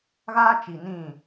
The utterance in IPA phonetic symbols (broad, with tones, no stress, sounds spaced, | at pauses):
ɣ aː˦ t͡ʃ i˨ n ĩ˦˨